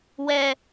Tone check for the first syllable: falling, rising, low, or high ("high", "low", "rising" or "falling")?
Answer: low